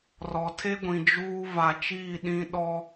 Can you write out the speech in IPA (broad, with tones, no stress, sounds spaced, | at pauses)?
r ɔ˨ tʰ e˦ ɡʷ ĩ˨ d͡ʒ uː˦ v a˨ t͡ʃ iː˦˨ ɗ ĩ˦ ɗ ɔ˦